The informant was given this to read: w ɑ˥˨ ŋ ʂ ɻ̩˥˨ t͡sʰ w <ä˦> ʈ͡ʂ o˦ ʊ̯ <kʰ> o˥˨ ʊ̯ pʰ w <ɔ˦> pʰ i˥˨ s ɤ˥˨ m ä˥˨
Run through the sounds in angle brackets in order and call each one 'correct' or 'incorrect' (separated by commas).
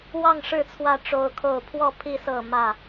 incorrect, correct, incorrect